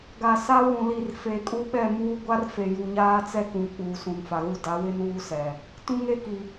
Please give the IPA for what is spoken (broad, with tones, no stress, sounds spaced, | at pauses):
ɡ a˨ s a˦ w ũ˨ l i˨ r f e˨ kʼ u˦ ɓ ɛ˦˨ m uː˦ ɡʷ a˦ r f e˨ j u˨ ɲ aː˦ t͡s ɛ˦ k ũ˨ k͡p uː˨ s ũ˨ n f a˨ ɣ u˦˨ d a˨˦ w ɪ˦ n uː˦ s ɛ˨ | t ũ˦ ŋ e˦ k i˨